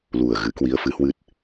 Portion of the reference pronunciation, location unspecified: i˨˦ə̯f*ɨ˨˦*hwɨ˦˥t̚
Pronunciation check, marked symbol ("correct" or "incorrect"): correct